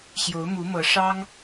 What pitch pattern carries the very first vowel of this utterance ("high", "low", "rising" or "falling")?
rising